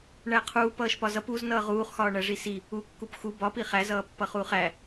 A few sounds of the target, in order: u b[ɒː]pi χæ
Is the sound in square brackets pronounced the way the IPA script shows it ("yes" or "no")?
no